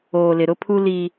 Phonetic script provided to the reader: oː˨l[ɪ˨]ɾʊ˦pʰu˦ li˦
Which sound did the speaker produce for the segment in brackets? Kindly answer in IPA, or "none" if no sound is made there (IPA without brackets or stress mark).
ɪ˨